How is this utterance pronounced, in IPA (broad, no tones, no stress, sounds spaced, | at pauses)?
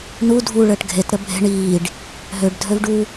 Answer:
n u dʱ u ɭ əː ʈ ɡʱ e t ɾ ə bʱ e̤ ɳ iː ɖ | ɦ ø ɖ dʱ ø v ɖ u